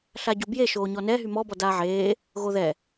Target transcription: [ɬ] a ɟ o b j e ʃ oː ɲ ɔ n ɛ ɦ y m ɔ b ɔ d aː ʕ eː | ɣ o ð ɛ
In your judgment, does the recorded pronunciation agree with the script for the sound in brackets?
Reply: yes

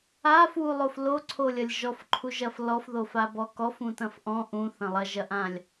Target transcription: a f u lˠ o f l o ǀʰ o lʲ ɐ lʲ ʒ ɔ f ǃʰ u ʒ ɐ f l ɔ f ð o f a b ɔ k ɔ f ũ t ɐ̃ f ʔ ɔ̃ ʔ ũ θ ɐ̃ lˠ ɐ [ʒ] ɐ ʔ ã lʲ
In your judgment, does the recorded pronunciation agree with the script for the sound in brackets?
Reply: yes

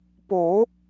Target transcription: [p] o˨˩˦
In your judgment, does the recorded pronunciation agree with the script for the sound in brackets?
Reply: yes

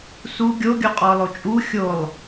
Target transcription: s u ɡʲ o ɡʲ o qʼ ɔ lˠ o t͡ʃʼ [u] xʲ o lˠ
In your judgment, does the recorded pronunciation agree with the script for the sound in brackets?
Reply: yes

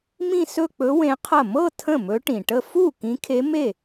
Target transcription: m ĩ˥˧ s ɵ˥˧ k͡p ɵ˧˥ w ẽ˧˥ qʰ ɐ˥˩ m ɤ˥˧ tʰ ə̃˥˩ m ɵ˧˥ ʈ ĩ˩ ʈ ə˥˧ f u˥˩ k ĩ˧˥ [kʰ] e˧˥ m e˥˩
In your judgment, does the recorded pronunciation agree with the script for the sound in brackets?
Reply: yes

